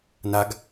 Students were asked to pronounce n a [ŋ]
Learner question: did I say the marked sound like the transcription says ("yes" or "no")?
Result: no